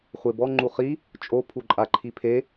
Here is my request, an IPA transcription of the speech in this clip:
χʷ e b ɔ ŋ͡ǃ u χ i | t͡ʃʼ o pʰ u ǃʼ a ǃʰ i pʰ e

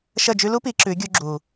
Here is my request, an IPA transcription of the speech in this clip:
ʃ ə˦˨ d͡ʒ ʉ˦ l u˦ p i˨˦ ǁ ʉ˨˦ ɡʲ u˧ ɡ͡ǁ uː˨

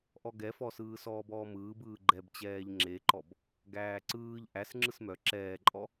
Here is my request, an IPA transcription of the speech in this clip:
ʔ ɔ ɡ ɛ f ɔ s ɯː s ɔː b ɔː m ɯː b ɯː ɡ͡ǃ ɛ b t͡ɕ ɛː ʎ ŋ͡ǁ e ǃ ɔ b | ɡ æː ǀ ɯː ʎ ʔ æ s ŋ͡ǁ ɯ s m œ ǁ ɛː ǃʼ ɔ

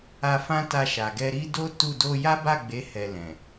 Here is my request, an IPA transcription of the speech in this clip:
a˧ f ã˦ t a˧ ʃ a˨ ɡ ɛ˧ ɾ i˦ d o˦ t u˦˨ d o˧ j a˦ b a˦˨ ɡ͡b e˨˦ h ɛ˧ l ɛ̃˨

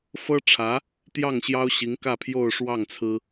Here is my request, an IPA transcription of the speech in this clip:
f ɤ˥ ʈ͡ʂʰ ä˧˥ | t̪ j ɑ˥˩ ŋ ɕ j ɑ˥ ʊ̯ ɕ i˧˥ ŋ k ä˥˧ pʰ j o˥˧ ʊ̯ ʂ w ɑ˥˩ ŋ t͡sʰ ɹ̩˥

